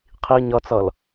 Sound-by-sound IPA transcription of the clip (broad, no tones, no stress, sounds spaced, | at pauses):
qʰ i ɲ ʌ t͡s ʌ l